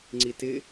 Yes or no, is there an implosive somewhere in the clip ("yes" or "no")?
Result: no